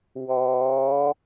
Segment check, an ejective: absent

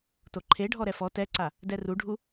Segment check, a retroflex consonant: present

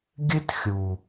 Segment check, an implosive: absent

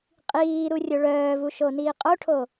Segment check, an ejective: present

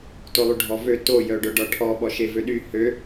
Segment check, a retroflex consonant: present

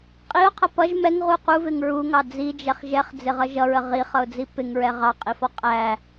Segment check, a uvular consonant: present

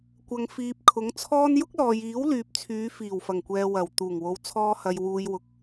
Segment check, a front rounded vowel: present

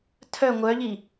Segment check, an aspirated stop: present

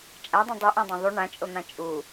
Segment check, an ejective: present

